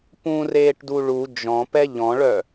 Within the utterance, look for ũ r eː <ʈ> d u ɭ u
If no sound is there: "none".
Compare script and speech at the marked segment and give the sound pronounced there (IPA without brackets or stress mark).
ʈ